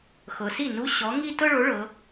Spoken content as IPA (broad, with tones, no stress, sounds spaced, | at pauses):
x ɤ˩˧ s i˥˩ n u˧˥˧ ɕ ɔ˨˥ ŋ i˥˧ t ɤ˥˧ ɭ o˨˥ ɭ ɤ˩˧